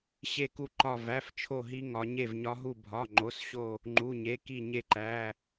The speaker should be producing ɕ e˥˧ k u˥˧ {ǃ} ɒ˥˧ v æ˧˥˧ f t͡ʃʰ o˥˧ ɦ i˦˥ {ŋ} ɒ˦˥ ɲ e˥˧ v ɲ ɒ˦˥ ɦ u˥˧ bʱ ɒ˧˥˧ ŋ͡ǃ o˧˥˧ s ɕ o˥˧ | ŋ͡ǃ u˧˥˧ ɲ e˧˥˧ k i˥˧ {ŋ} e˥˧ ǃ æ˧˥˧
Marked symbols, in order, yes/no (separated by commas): yes, yes, no